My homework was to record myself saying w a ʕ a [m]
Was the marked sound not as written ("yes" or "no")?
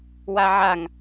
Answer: yes